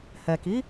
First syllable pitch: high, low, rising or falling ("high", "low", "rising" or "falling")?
low